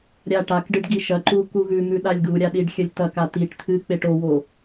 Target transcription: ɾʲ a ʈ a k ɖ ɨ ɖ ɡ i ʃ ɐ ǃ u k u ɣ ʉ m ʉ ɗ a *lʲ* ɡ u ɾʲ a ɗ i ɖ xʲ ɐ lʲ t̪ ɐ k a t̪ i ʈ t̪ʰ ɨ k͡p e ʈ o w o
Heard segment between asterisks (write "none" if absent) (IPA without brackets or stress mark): lʲ